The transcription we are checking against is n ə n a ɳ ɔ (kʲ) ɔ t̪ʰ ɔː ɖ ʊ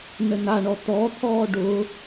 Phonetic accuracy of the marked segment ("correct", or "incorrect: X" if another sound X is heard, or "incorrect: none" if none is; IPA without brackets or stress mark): incorrect: t̪